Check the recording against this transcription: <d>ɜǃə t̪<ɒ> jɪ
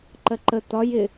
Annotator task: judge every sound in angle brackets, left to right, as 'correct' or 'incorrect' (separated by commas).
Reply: incorrect, correct